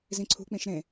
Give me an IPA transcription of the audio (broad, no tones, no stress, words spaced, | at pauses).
zĩǀʰṳk͡pĩʃ ɾẽ